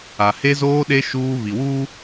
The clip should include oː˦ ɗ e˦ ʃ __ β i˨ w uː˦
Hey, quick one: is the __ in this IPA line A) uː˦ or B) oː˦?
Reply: A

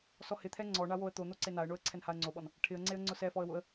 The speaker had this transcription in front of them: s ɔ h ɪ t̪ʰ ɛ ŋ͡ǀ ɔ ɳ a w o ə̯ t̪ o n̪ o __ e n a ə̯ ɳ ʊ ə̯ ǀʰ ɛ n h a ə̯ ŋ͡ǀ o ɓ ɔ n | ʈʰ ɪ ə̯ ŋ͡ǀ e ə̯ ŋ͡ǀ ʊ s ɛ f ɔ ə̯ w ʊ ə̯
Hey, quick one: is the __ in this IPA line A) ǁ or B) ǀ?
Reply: B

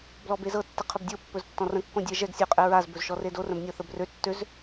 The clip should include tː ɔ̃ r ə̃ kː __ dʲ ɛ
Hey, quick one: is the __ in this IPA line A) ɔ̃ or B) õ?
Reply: B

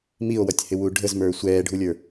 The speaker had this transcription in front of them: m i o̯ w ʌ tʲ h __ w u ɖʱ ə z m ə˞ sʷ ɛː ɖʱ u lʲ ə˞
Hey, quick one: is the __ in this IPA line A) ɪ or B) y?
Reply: A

